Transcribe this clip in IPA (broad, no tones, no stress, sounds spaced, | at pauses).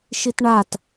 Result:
ʃ i t ɳ a t